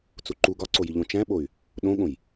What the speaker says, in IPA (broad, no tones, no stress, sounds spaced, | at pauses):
t͡s u ǃ u ɡ ɒ ǀ o j i ʎ õ t͡ʃ æ̃ ɓ o y̯ | ɗ õ ɠ õ j